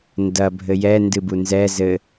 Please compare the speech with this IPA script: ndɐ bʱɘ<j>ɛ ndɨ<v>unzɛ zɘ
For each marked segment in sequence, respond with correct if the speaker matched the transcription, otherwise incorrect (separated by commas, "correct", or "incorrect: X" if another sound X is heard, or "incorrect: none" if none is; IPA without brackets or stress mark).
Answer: correct, incorrect: b